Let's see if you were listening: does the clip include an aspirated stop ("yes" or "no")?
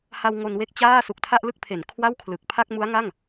yes